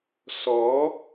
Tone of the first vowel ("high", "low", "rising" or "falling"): rising